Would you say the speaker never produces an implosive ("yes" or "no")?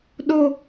no